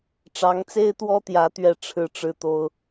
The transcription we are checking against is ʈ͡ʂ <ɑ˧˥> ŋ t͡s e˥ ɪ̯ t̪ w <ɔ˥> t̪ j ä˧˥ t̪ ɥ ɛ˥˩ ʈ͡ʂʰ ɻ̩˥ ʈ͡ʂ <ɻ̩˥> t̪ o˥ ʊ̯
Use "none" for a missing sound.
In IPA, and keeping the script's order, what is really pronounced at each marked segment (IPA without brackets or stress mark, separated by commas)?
ɑ˧˥, ɔ˥, ɻ̩˥˩